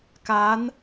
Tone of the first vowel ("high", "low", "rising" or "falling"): rising